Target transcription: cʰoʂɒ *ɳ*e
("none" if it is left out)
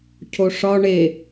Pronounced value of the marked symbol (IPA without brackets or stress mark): ɳ